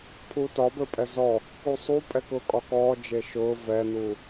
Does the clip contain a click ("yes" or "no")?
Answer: no